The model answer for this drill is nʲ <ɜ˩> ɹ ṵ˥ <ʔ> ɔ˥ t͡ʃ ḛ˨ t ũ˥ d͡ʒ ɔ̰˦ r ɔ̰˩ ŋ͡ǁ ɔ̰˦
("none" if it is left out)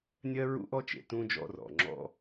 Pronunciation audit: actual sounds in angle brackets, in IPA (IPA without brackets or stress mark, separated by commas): ɜ˥, ʔ